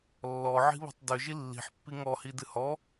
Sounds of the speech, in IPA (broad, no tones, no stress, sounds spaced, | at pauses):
lː ɔ ʕ i̤ β o̤ tˤ d ø ʒ i lː i̤ ħ pː i ŋ ɔ h i d ɨ h ɔ